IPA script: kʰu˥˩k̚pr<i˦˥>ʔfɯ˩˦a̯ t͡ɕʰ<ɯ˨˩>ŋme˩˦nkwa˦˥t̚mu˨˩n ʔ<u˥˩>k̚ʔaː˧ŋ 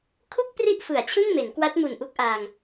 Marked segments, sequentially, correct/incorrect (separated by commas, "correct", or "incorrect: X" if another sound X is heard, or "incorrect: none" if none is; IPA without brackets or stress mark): correct, incorrect: ɯ˥˩, incorrect: u˦˥